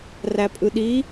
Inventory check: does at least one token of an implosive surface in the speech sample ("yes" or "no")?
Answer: yes